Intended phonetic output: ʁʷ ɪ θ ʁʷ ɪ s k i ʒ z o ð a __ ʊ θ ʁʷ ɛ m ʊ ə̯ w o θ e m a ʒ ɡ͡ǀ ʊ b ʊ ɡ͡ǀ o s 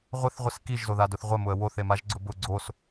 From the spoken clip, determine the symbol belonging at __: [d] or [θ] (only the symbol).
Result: d